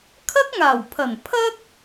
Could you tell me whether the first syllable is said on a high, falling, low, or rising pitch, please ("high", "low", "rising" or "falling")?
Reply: high